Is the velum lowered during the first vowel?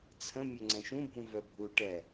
yes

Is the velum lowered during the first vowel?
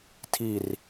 no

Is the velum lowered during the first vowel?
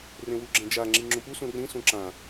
yes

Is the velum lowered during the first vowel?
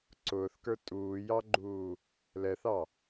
no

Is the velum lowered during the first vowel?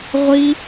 no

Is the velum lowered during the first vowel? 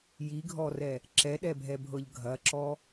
no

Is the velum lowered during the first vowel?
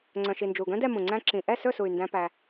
yes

